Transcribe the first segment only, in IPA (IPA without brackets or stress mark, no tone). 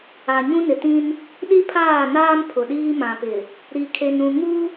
a